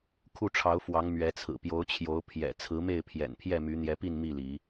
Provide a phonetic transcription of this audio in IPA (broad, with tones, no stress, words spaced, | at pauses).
kʰu˥˨ʈ͡ʂʰɑ˨˦ʊ̯fwɑ˨˦ŋ mɥɛ˨˦t͡sʰɹ̩˨˩ pjo˨˦ʊ̯t͡ɕʰjo˨˦ʊ̯ pʰjɛ̰˨˩ t͡sʰɹ̩˨˦me˥˨ɪ̯pʰjɛ̰˨˩npʰjɛ˥˨ my˨˦n̪jɛ˨˦pi˥˨n mi˥˨li˨˦